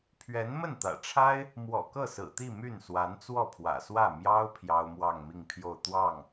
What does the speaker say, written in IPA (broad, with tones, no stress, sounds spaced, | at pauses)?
pʰ ɥ ɛ˧˥ n m ə˥˩ n t̪ ä̰˨˩ ʈ͡ʂʰ a˥ ɪ̯ | m w ɔ̰˨˩ k ɤ˥˩ s ɹ̩˨˩ t̪ i˥˧ m y˥˩ n s w a˧˥ n t͡s w ɔ˥˩ pʰ w ä̰˨˩ s w ä˥˩ m j ɑ˥ ʊ̯ pʰ j ɑ˥ ʊ̯ m w ɑ˥˧ ŋ m i˥˧ ŋ pʰ j o˥˧ ʊ̯ t̪ w ɑ˥˩ ŋ